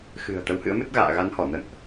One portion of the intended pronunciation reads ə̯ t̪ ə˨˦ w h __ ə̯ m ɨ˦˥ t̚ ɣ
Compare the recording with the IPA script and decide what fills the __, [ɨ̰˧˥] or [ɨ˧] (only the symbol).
ɨ̰˧˥